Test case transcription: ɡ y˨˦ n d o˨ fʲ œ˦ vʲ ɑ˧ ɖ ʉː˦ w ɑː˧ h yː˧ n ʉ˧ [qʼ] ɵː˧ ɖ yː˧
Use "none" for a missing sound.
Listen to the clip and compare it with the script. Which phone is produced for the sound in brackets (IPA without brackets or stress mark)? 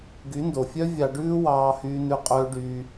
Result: qʼ